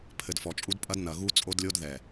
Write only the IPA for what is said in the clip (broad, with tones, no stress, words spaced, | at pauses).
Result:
pʰɘ˨dfɔ˨t͡ʃʼu˦dpʼɐ˦d nɐ˨ɣu˦ t͡sʼo˦dlʲo˦d ðɛ˨